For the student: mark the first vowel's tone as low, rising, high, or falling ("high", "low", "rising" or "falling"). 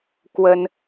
high